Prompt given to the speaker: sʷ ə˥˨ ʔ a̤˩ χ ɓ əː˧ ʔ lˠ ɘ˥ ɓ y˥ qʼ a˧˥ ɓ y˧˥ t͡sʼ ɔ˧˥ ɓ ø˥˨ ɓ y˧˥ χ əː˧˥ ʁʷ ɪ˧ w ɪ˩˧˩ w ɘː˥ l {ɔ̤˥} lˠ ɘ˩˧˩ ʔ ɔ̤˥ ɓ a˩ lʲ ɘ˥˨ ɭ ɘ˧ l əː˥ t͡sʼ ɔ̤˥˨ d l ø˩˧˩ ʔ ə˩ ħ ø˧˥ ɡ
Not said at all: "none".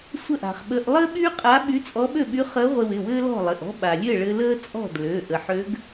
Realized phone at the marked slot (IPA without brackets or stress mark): ɔ̤˥˨